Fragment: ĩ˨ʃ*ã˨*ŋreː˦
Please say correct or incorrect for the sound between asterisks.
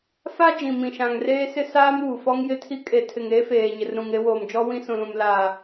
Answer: correct